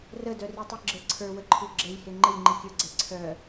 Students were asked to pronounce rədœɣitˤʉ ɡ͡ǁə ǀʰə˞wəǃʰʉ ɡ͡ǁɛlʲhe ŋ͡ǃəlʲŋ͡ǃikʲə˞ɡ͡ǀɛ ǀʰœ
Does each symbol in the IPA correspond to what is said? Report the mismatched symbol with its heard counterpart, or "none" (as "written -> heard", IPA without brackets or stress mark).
ɣ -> r